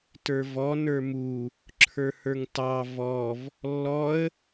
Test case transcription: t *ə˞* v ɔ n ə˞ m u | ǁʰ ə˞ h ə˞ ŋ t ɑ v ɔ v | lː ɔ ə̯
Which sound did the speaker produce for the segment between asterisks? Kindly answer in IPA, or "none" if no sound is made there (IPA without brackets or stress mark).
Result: ə˞